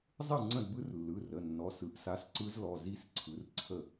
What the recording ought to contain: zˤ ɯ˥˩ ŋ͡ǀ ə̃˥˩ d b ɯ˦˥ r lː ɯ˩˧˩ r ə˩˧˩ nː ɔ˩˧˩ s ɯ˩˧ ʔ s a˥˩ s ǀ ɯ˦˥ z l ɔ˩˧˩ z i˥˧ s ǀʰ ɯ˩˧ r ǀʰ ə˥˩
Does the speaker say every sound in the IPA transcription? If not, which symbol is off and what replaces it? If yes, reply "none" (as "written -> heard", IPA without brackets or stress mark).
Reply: a˥˩ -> a˨˥